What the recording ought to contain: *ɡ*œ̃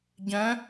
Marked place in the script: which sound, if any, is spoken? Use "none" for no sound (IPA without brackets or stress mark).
ɟ